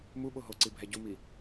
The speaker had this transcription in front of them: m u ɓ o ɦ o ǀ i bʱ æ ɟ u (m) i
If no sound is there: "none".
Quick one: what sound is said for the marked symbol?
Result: m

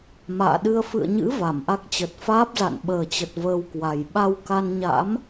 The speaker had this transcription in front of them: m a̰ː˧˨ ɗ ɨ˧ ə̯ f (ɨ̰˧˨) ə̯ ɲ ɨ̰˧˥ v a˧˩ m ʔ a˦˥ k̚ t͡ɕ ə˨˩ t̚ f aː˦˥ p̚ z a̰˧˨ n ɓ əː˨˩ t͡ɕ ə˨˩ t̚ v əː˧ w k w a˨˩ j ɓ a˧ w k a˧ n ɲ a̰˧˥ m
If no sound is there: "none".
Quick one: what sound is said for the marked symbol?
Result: ɨ̰˧˨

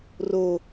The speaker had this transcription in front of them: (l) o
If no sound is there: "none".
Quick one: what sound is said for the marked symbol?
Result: r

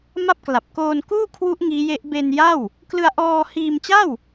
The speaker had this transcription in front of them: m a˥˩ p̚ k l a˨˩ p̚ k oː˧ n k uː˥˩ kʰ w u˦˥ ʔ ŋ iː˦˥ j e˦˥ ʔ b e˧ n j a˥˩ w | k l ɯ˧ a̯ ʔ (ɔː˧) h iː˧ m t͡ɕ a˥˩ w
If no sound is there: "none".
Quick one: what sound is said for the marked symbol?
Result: ɔː˧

